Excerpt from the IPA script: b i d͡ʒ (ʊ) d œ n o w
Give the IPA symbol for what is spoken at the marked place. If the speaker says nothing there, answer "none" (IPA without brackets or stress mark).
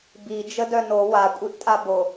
ə